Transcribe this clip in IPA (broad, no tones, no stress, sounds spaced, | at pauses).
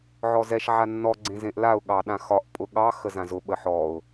ʕ ɔ z ɛ ʃ ʕ a nː ɔ ɡ͡ǀ ẽ z ẽ ʔ l a ʊ̯ ɠ ɑ ɗ ã x ɒ ʔ pʼ ʊ ɠ ɑ x ə z ã z ʊ ɓ ə ħ ɔ ʊ̯